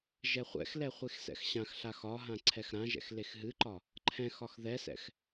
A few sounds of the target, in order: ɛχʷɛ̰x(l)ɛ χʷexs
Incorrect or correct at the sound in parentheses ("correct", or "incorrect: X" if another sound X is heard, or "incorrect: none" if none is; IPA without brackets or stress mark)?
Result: correct